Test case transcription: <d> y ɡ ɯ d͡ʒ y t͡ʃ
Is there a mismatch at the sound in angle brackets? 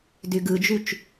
no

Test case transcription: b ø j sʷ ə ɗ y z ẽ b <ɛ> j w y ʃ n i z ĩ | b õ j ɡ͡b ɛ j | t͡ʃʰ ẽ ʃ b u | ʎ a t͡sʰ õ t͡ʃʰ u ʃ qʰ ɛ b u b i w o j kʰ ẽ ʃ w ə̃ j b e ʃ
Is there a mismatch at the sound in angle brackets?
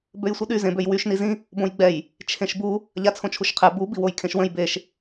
yes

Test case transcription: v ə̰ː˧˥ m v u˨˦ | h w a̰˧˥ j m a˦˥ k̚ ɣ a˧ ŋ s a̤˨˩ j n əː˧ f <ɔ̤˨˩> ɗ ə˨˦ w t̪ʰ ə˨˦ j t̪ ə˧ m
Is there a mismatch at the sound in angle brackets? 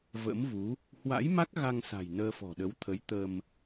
no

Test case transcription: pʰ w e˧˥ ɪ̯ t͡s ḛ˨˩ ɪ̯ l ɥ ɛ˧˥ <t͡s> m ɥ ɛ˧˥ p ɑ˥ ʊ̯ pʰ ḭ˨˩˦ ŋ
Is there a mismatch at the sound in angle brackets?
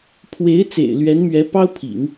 yes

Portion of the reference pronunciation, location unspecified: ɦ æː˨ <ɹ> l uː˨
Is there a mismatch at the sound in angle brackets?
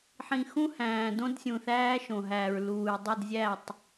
no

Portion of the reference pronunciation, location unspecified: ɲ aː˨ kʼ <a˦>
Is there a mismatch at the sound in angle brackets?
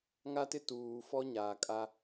no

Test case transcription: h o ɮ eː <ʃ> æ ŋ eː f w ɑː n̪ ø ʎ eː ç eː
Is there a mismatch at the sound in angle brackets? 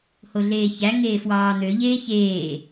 yes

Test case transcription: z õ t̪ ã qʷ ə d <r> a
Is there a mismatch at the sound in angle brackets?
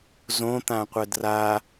no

